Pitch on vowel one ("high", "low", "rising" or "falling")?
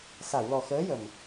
low